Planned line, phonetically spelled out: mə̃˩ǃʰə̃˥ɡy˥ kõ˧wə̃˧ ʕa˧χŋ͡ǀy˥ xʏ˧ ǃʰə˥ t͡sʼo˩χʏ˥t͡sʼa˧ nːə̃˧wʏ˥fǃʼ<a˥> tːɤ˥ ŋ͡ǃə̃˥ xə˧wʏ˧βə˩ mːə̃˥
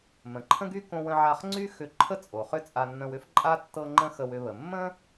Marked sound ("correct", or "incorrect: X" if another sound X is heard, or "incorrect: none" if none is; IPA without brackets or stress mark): correct